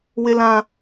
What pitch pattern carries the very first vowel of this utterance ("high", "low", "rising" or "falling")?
high